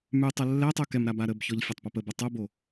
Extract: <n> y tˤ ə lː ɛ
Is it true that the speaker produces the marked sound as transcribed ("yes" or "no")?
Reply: no